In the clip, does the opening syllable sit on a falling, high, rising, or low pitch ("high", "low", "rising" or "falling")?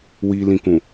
high